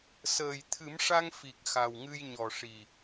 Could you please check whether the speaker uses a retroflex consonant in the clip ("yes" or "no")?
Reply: yes